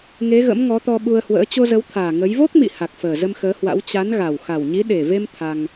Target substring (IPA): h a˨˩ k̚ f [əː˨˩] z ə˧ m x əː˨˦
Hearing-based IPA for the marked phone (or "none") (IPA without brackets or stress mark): əː˨˩